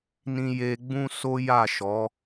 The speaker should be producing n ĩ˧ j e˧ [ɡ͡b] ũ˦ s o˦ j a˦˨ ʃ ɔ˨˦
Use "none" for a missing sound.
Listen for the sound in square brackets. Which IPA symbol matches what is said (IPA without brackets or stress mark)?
ɡ͡b